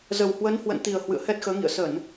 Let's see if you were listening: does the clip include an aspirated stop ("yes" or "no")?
no